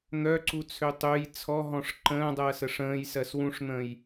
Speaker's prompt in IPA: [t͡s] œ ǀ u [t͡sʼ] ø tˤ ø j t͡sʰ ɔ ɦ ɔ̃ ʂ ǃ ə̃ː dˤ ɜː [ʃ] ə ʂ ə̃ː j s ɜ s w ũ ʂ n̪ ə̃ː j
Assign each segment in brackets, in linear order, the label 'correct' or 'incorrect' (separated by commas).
incorrect, incorrect, incorrect